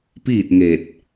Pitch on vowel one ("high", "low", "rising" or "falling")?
falling